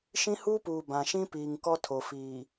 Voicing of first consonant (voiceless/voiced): voiceless